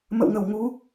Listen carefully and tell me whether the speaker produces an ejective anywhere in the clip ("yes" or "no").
no